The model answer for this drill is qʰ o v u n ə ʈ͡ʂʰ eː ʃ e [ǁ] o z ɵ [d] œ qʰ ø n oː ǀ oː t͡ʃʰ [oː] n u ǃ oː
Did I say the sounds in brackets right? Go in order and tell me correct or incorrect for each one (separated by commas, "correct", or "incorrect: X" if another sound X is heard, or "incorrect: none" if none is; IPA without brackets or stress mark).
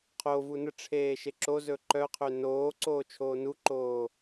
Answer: correct, incorrect: ǃ, correct